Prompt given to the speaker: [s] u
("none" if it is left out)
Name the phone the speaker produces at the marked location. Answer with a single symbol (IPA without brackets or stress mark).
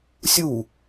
sʲ